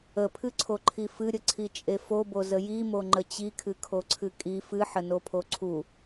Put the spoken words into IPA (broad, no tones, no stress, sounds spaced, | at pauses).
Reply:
ə pʰ ɨ ǀʰ o ǃʰ i f ɨ ɾʲ ə ǀʰ i t͡ʃʼ e f o b o z ə j i m o ŋ͡ǃ ə t͡ɕ i kʰ ɨ kʰ o ǀʰ ɨ kʼ i f ɨ ħ ə n o pʰ o ǀʰ u